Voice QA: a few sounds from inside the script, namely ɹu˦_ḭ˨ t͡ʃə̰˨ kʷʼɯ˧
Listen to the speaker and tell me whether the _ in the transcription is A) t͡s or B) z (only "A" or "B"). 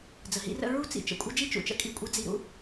A